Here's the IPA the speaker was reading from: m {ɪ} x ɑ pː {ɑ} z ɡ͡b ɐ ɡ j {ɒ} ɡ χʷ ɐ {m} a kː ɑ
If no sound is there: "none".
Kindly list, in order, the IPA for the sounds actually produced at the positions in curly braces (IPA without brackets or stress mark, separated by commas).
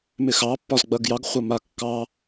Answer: ɪ, ɒ, ɑ, m